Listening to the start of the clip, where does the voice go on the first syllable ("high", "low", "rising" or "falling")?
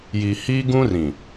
low